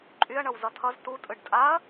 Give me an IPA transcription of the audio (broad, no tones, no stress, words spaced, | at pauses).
ǃʼyɐ̯ɳʌw zʌtʰʌz tutʼɯɖ tʼaɐ̯